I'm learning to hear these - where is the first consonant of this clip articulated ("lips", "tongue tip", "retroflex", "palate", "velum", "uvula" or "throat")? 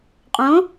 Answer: uvula